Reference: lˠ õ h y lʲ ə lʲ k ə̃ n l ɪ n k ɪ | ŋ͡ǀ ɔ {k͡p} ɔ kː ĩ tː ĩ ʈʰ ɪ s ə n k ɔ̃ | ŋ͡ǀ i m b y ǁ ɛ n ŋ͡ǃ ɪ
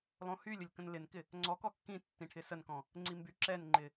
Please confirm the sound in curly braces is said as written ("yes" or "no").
no